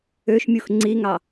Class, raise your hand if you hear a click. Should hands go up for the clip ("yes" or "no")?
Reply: yes